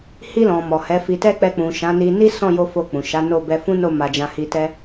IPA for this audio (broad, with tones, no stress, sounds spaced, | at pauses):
h i˧ l ɔ̃˨ m ɔ˨ h ɛ˨˦ f i˧ t ɛ˦ k͡p ɛ˧ k͡p ũ˨ ʃ ã˨˦ n i˧ n i˦ s ɔ̃˦˨ j o˧ f o˧ k͡p ũ˨ ʃ a˨˦ n o˦˨ b ɛ˧ f ũ˦ n o˦˨ m a˧ d͡ʒ ã˧ h i˧ t ɛ˦